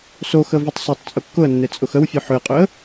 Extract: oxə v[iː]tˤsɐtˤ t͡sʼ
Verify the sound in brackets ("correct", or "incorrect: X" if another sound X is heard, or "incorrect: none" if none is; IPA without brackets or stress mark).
incorrect: i